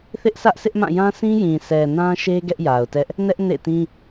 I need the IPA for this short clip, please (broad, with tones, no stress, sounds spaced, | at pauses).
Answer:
θ ɪ˦ ʔ s ä˦ ʔ s ɪ˦ ʔ m ã˦˨ j ã˦ s ĩ˦ j ĩ˨ s ɛ˨ n ã˦ ʃ e˦ ɡ ɛ˦ ʔ j a˨ ʊ̯ t ɛ˦ ʔ | n ɛ˦ ʔ n ḛ˦˨ t ĩ˦